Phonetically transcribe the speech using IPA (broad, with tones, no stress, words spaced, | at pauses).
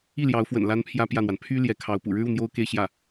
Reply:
i˥˩ljɑ˧˥ʊ̯fwə̰˨˩n la˥npʰjä˥pjä˥˩n̪wa˩n pʰy˥ ljɛ˧˥kʰɑ˧˥ʊ̯ pṵ˨˩ɻɻ̩˥u˥˩ n̪jo˥ʊ̯ke˥˧ɪ̯ ɕjä˥˩